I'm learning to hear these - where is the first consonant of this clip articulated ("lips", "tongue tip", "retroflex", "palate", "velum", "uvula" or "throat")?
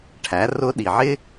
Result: retroflex